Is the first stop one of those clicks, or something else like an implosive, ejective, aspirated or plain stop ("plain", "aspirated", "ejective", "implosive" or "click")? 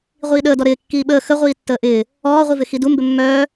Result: implosive